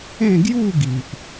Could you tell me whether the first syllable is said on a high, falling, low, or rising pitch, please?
falling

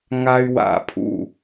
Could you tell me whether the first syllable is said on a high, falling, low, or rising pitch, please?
high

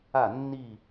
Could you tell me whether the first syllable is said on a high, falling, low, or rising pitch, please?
falling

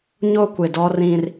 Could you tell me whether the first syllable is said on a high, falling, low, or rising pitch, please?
high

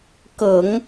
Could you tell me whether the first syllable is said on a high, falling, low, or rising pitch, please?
low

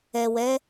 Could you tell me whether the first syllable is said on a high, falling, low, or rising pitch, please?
low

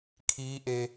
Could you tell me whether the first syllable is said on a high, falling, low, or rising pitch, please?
rising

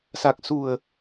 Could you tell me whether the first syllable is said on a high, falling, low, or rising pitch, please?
low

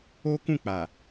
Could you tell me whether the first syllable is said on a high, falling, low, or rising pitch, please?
high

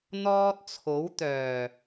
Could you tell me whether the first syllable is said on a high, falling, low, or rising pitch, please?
high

